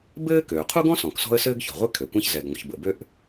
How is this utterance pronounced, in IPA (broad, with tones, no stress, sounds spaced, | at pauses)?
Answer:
b ɘː˥ k øː˩ qʰ u˥ ɡ ɔ̃˥ s ɔ̃˩ k s ɔ̤˥ ə̯ s ɘː˥ ɡ ç ɔ̤˩ ʁʷ ɪ˥ kʰ ø˩ kʷ ã˥ ç z ɛ˩ ɡ ŋʷ ə̰˩ ç b ə̰˩ b ø˥ ʔ